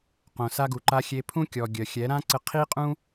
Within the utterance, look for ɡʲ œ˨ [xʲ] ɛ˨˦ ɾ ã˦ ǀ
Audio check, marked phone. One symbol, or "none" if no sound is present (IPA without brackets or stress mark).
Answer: xʲ